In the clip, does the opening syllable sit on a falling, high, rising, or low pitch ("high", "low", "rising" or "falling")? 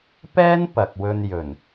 high